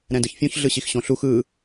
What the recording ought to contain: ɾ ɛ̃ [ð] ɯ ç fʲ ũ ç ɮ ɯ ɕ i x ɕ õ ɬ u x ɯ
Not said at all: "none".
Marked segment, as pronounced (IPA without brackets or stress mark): d